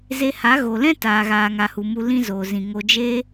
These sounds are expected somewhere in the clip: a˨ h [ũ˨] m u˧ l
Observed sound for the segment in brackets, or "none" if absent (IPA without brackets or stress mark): u˨